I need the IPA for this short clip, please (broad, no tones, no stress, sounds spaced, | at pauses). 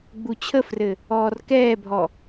ɡ͡b u t͡ɕʰ ə f r ɘ | ɔː r k ɛː bʱ ɔ